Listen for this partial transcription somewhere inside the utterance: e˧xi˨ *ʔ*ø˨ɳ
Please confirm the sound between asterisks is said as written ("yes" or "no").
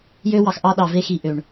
yes